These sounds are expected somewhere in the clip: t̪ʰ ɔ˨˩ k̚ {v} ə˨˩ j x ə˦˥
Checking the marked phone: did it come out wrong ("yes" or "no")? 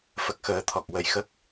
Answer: yes